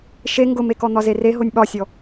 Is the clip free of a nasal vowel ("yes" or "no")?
yes